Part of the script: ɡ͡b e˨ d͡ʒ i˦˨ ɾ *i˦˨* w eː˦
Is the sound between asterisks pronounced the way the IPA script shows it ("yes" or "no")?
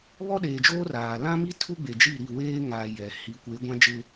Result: yes